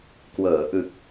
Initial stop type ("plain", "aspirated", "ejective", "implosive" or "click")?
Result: plain